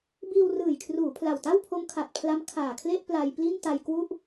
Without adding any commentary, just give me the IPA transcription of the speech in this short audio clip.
b iː˧ w r ɯː˨˩ j kʰ r uː˩˦ pʰ l a˨˩ w t a˥˩ w pʰ o˦˥ m kʰ a˨˩ t̚ pʰ l a˦˥ m kʰ aː˨˩ kʰ l e˥˩ ʔ p l a˧ j p l i˥˩ n t a˧ j k w u˥˩ ʔ

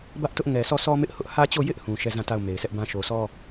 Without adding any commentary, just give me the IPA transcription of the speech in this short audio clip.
b ä˦ ʔ t ʊ˦ ʔ ŋ ɛ˨ sʰ ɔ˦˨ s ɔ˦ m ɪ˦ ʔ h ʊ˦ ʔ h ä˦ t͡ɕ o˦˨ j ɪ˦ ʔ h ũ˨ ʃ ɛ˦˨ z ã˦˨ t a˦˨ ʊ̯ m e˨ ɪ̯ sʰ ɛ˦ ʔ b ã˦ ʃ o˨ s ɔ˦

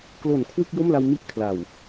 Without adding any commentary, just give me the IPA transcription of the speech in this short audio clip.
k l o˨˩ n kʰ w ɯ˥˩ k̚ j o˥˩ m l a˧ w m i˥˩ ʔ kʰ l a˨˩ w

